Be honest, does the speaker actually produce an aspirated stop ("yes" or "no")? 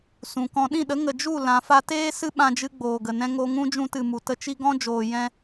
no